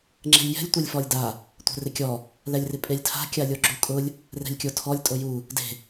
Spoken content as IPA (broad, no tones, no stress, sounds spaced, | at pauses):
ŋ͡ǁ ɛ̤ lʲ j ɛ̤ lʲ tʷ e lʲ f ɔ lʲ d a | tʷ ɛ̤ r ɪ kʲ ɔ | l ɛ lʲ r ɪ pʼ e lʲ tʰ a̤ kʲ a lʲ o ɡ͡ǁ u kʼ ʊ lʲ | r ɛ̤ lʲ kʲ o tʰ ɔ lʲ tʼ o j u | d e̤